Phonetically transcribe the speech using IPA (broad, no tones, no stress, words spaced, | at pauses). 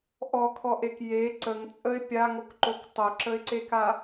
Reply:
ʔɔkʰɔʔek je ǀəŋt͡sʼəɪ̯ pʲaŋokǃok tˤœǁəɪ̯ǀeka